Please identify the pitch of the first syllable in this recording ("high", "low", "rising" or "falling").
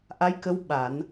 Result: rising